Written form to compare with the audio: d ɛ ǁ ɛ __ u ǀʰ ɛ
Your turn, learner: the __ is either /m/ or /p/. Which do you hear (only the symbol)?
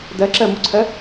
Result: m